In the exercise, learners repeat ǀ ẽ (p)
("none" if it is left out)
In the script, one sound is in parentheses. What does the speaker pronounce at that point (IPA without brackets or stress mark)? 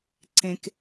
k